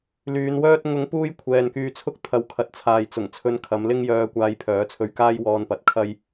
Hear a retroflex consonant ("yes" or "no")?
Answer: no